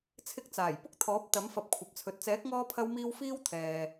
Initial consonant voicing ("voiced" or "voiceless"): voiceless